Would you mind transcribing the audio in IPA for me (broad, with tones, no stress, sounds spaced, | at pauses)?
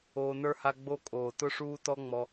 oː˧ n ə˞˦ h a˦ ɡ͡b o˦ kʼ oː˨ t ʊ˦ ʂ uː˦ t ɔ˦ ŋ͡m ɔ˧